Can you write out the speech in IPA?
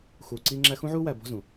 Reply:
xuː˨ǀiː˦ŋ͡ǁæ˦ xũ˥ʕuː˥wæ˨ bɔ̤˦zũ˩

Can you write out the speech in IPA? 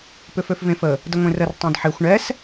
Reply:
pʏføfvẽfə | dəŋʷẽrər tˤẽdħexʷ ɳɛs

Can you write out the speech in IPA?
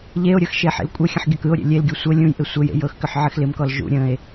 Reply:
ʎeo̯ɾʲɤx ʃeħḛlkʷʼəxʲə̃ħ ɡʲɔkɯo̯ɾʲḛ lʲelɡʲɤ sʷɤ lʲũjʔɪ sʷəjḛ jɤxkʏħ ʕɪxlɪmkɔl ʒṵ ɾʲə̃e̯

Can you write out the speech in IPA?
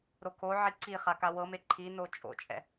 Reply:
ɾokʰoʕi ǀiχa kawɤme ǃʰino t͡ʃʼo̰t͡ʃʼɛ̰

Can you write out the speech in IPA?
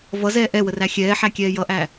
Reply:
vʌzɛː ʔɛwəræ xʲɛːħækʲɛː jʌʔæ

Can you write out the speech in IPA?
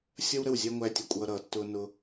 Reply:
sʲʌ˦wɾə˦˨w zʲæ˦ŋʷæ˧ tʲʌ˨kʷʼʌː˧ɾʌː˨ tːʊː˧nʊ˧

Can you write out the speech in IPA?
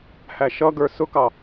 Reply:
hæʃʌɡə˞ sʊkɑ

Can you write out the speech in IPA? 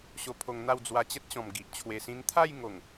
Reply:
ɕo˧pʰo˧ŋn̪a˥˧w d͡zwa˧t͡ɕə˦t̚ɕɔ̃˨˩m ɡi˨ʔ t͡ɕʰwe˨˩sĩ˧n t̪ʰa˥˧j ŋo˨˩ŋ

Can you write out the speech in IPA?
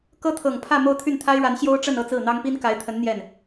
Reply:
kɤ˥t̪ʰɤ˨˩ŋpʰä˥˧ mo˥˧ʊ̯t̪ʰy˥˩nt̪ʰa˥ɪ̯ɻa˧˥n ɕjo˥ʊ̯ʈ͡ʂə˥˧n ɤ˥˧ t͡sɹ̩˥˩n̪ɑ˥ŋpi˥n ka˧˥ɪ̯t̪ʰə˧˥n n̪jɛ˥˩n

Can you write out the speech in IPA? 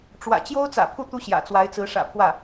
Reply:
ʈ͡ʂwä̰˨˩ t͡ɕjo˥ʊ̯t͡sä̰˨˩pʰu˥˩ t̪u˥ɕjä̰˨˩t͡swa˧˥ɪ̯t͡sɹ̩˧˥ ʂä̰˨˩pʰwä˥˩

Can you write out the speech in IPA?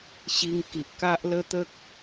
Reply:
ɕi˧ŋ ki˨ʔka˦ʔ lə˦t̪ə˦k̚

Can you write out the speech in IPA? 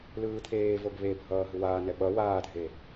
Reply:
lɯːt̪ʰeːvoɡ βebʱʌː ɦɯwaːnɛ ɓʌ waːdʱe

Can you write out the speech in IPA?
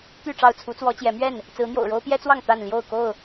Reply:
t̪y˥˨ʈ͡ʂɑ˥˨ʊ̯ t͡sʰu˨˦t͡swɔ˨˦t͡ɕjɛ˨˦mɥɛ˥˨n | t͡sɹ̩˨˦n̪jo̰˨˩ʊ̯ɻo˦ʊ̯ pjɛ˦t͡swɑ˥˨ŋ t̪a˥˨n ljo˥˨ʊ̯ko˥˨ʊ̯

